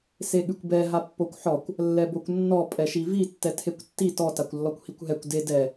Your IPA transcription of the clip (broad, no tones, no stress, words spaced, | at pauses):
seɠʉkʷbɛ ɦapːokʷħɔkʷ | lːɛbokʷnːɔ pʼɛʃivi tːɛtʰekʷtːi tɔ takʷlːɔkʷhikʷɦɛkʷ de dɛ